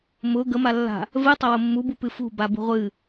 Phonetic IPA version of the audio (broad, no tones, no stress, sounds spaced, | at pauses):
m ʊ ɡ ə m a lː a̤ | v ɨ tˤ ə w ʊ mː u b u p ɨ f ṳ b a b ṳ ʁʷ ɨ